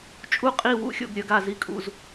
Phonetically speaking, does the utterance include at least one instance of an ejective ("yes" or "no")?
yes